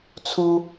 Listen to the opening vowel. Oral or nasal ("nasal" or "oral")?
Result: oral